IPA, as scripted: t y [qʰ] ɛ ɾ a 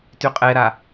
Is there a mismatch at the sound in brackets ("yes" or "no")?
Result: yes